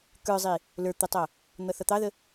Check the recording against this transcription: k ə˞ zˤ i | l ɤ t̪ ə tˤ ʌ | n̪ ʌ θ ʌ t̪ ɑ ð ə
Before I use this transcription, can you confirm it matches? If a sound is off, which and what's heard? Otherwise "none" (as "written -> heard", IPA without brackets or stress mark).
ɤ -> ə˞